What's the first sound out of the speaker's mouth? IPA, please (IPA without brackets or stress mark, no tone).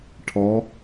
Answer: ʈʰ